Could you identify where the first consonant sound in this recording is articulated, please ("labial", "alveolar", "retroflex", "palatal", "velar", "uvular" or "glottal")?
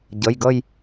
palatal